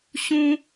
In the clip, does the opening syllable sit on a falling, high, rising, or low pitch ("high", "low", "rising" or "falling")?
high